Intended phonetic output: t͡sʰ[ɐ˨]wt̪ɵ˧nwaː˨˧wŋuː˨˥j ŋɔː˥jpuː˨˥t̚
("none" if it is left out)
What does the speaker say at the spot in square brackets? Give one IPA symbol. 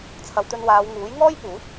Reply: ɐ˨˧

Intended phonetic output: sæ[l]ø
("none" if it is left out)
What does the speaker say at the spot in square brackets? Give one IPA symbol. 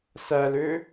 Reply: l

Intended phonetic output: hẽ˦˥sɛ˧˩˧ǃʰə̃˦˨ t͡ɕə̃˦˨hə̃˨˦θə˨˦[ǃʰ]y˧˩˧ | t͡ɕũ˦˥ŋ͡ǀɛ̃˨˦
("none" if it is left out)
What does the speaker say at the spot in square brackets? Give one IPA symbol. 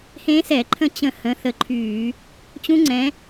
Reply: ǃʰ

